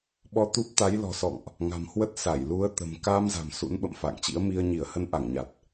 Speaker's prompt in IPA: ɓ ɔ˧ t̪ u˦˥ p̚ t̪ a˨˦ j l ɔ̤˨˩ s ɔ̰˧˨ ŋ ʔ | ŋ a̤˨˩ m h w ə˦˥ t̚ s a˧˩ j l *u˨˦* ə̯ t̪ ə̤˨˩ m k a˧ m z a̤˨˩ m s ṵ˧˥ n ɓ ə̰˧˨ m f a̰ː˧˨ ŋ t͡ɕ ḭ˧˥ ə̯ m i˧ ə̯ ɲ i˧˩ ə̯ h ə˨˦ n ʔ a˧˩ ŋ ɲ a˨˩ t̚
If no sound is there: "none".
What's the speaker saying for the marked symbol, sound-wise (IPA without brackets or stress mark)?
u˨˦